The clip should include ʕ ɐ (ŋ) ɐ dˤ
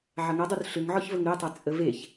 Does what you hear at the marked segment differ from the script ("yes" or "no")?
no